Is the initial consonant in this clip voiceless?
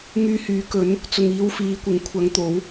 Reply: no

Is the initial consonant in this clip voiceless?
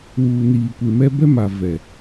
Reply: no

